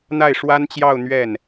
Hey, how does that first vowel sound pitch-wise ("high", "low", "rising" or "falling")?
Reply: falling